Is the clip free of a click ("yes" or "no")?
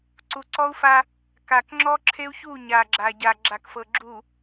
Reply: no